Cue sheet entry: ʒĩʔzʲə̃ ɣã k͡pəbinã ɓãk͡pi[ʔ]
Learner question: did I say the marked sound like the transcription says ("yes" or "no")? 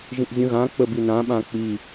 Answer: no